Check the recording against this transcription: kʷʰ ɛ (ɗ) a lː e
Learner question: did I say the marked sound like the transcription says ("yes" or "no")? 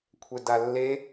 no